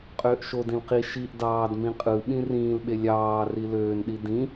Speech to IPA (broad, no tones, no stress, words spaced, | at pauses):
qʼøːʔʃodĩl qi ʃiʔ dɑːdmĩ qʼɯɓĩ rĩːlɓe lʲɑː riløːnɗi dĩ